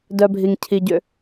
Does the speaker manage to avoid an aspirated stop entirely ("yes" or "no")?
no